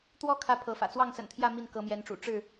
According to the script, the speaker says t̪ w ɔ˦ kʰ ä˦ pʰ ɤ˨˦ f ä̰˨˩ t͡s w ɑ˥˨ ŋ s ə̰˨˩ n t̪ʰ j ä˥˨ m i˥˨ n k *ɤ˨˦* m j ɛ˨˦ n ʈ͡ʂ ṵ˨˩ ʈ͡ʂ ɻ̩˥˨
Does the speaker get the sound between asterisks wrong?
no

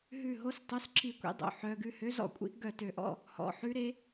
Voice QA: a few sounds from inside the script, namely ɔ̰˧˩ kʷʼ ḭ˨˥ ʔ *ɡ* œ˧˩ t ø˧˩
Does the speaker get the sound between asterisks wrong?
no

